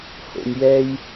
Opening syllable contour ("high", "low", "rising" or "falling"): low